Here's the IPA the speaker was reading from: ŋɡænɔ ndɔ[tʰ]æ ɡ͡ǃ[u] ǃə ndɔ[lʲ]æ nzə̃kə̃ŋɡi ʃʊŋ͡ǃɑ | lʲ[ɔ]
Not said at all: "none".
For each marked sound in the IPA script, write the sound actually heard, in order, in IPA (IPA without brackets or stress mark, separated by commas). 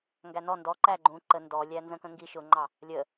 ǃ, ũ, lʲ, ə